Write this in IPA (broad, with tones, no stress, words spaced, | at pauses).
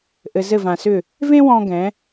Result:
ʔɘ˧ zɘ˥˧vã˧sʏ˥˧ | vẽ˥wɔ̃˧ɡɛ̃˩˧